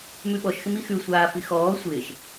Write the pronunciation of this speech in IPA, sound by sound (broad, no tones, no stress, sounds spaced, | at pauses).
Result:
m ʉ ɓ ɔ ʃ x ɪ m i x ʉ sʷ aː f i x ɔː sʷ ɪː ʃ